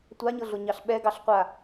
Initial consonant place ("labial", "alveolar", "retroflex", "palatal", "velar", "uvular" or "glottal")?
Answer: alveolar